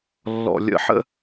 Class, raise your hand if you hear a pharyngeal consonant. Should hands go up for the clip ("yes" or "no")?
yes